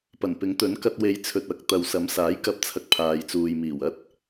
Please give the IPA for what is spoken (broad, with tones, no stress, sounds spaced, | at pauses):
p ɐ˨˩ n p ɪ˨˥ ŋ t̪ ɵ˨˥ n k ɐ˧ t̚ w e˨˧ j t͡sʰ ɵ˨ t̚ ɐ˨ k̚ t̪ ɐ˨ w s ɐ˨˥ m s aː˨˥ j k ɐ˨˥ p̚ t͡sʰ ɐ˧ k̚ pʰ aː˨ j t͡s uː˨ j m iː˨˩ w ɐ˥ t̚